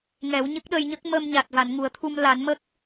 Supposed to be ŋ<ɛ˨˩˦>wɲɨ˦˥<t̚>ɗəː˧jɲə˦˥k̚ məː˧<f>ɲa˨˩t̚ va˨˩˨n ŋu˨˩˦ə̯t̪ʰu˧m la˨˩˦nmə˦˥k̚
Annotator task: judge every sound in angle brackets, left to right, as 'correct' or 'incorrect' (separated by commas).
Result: correct, incorrect, incorrect